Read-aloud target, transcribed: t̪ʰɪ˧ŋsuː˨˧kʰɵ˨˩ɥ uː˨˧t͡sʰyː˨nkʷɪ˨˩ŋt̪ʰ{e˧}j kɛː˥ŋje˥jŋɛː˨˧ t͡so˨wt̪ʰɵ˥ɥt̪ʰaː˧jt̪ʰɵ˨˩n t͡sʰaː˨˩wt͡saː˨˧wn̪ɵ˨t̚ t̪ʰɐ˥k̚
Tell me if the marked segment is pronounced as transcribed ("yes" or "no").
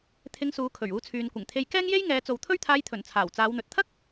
yes